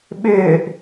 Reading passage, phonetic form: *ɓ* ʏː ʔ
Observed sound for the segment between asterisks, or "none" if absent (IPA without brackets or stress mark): ɓ